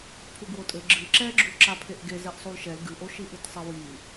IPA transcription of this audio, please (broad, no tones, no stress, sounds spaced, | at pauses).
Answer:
pʰ u ɡ w o tʼ ɘ ɡ͡ǁ ɨ ǁ ɛ ɡ͡ǁ u ǁ a pʰ e ʔ ɡ e z ɛ ʔ sˤ u l ʃ ɛ l ɡ ɨ ʔ o ʃ i ʔ ɨ t sˤ ɘ w i